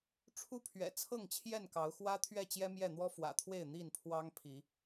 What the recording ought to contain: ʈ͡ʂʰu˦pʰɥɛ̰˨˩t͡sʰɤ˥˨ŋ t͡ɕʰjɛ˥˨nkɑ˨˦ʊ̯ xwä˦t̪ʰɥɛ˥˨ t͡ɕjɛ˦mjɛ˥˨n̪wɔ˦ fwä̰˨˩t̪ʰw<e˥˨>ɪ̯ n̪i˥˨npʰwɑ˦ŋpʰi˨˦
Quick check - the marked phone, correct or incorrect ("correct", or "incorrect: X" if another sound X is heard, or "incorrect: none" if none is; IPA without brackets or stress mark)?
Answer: correct